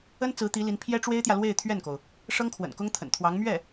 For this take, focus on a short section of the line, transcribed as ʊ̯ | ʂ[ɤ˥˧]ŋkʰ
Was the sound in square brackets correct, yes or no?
no